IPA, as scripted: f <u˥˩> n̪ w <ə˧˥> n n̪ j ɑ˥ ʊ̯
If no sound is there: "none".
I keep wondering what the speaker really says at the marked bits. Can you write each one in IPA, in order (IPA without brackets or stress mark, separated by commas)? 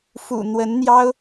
ṵ˨˩, ə˧˥